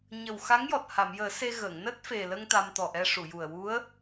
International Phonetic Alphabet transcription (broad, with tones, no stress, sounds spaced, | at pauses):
ɲ ə˨˩ w x a˧˥ ŋ j ɔ˨˩ t̚ h a˨˩˨ m j əː˨˩˦ s e˧ ɣ əː˨˩˨ ŋ n əː˦˥ t̚ f e˨˩ l ə˧ ŋ t̪ a˧ m t̪ ɔ˨˩ ʔ ɛ˧ ʂ u˨˩˨ j u˨˩ ə̯ w u˧˥ ə̯